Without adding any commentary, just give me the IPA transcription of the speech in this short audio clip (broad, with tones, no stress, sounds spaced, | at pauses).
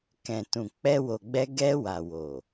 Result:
k ɛ̃˨ t ũ˨ k͡p ɛ˧ w o˨ ɡ͡b ɛ˧ ɡ ɛ˧ w a˨ w o˨